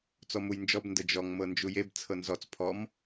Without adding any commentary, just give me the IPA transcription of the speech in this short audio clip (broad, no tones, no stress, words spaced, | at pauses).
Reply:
t͡sɔmujnd͡ʒɔb ndəd͡ʒɔŋ mɤnd͡ʒujeb t͡sʰɤnzɔt͡s pʰɔm